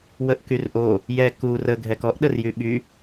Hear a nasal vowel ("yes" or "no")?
no